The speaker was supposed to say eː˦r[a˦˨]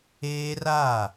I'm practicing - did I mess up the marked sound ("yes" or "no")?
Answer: no